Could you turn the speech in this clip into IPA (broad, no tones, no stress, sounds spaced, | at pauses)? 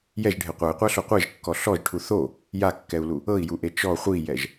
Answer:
j ɛ ʒ ɖʱ e qʷ a i̯ qʷ a ɬ o qʷ e ʒ kː ɔ ɬ ɔ ʒ ʈʰ u θ o | j a kː ɛ u̯ l u | ɤ i̯ j u ʔ e t͡ʃ ɔ χʷ i j ɛ ʒ